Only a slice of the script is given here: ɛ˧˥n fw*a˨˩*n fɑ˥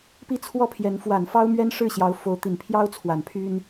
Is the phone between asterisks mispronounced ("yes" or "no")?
no